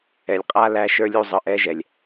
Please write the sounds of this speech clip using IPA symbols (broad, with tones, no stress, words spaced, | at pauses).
ɛ˨lʲqʼa˧ læ˧ʃə˞˧lʲu˧ zˤɯ˨ʔɛ˧ʒɛ˨lʲ